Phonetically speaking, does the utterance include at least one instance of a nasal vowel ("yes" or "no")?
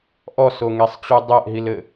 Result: no